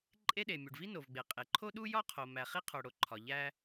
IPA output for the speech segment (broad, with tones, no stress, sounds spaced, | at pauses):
ǃʼ e˥ ɗ e˩ mʲ u˩ ɖ v i˥ n o˩ v ɡ͡b e˩ qʼ e˩ ǃʰ o˥ ɗ u˥ j ɒ˥ qʰ o˩ m æ˩ χ i˥ qʰ o˩ ɽ o˩ ǃʰ ɒ˩ ʎ æ˥